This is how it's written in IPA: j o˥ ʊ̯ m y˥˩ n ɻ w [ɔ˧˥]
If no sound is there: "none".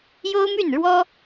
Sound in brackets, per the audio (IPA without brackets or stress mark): ɔ˥